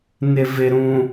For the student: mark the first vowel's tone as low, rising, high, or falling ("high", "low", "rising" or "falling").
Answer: low